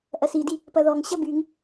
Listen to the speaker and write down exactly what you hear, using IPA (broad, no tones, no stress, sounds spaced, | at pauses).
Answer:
ʔ ɐ s i d i | p ɐ ð ɔ ŋ ɕ ɐ b y ŋ